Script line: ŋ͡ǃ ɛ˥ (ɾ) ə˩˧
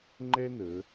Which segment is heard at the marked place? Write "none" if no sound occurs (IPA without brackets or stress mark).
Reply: n